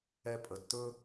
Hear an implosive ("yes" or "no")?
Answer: no